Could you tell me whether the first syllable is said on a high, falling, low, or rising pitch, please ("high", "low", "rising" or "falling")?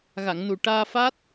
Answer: low